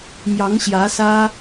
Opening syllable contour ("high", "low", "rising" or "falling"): rising